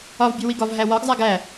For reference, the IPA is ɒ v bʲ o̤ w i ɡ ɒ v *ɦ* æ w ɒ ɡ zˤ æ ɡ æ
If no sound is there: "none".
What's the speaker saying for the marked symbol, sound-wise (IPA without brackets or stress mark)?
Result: ɦ